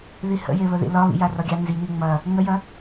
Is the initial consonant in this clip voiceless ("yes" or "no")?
no